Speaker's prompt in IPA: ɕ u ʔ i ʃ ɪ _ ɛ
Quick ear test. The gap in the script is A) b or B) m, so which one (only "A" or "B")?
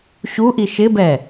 A